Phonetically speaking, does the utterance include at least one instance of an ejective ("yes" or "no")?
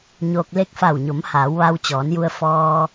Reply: no